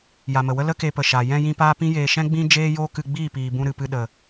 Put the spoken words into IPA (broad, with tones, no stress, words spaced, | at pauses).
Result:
ja˨mə˨wə˦ lə˦ke˧pə˨ ʃa˨ jɛ̃˧jĩ˧ paː˦pĩ˦jeː˧ ʃɛ̃˦ɡ͡bĩ˦ d͡ʒeː˦joː˦kɨ˧ɡ͡biː˦˨ piː˨bũ˧ ɾɨ˨pɨ˧ ɗə˨